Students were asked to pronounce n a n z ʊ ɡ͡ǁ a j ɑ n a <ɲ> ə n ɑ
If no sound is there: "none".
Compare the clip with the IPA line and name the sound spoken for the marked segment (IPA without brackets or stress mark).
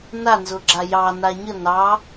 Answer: ɲ